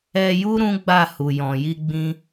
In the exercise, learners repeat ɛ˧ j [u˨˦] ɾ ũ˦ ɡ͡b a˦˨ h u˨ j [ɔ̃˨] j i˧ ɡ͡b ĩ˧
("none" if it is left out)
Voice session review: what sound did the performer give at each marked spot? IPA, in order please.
u˦, ɔ̃˨

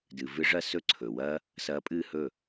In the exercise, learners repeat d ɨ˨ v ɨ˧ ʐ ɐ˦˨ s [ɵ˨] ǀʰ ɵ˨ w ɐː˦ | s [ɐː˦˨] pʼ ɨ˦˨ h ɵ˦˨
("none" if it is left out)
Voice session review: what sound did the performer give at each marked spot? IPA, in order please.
ɵ˦, ɐː˧

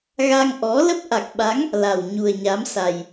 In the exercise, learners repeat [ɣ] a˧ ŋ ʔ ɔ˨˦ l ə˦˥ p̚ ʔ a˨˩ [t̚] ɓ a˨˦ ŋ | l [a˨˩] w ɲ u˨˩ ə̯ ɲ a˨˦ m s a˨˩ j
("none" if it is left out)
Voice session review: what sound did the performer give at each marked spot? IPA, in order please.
ɣ, k̚, a˨˩

